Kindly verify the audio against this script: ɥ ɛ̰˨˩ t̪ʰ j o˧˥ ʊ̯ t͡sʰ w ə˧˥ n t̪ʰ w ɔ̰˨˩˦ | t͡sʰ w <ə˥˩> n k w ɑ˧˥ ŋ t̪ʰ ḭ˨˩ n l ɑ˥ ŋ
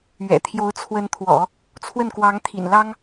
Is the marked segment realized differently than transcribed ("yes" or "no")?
no